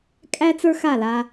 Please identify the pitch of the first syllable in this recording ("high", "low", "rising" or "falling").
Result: high